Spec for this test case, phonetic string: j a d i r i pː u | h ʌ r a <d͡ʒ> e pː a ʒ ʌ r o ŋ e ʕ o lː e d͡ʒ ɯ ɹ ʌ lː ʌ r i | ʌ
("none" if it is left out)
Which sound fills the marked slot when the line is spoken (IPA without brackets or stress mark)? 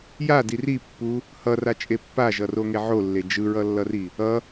t͡ʃʼ